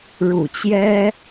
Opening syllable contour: low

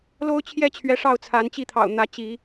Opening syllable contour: high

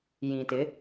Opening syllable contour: low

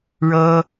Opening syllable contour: high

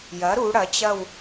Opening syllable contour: rising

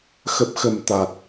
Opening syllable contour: low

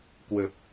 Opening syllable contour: low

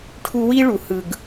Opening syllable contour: high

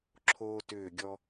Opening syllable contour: high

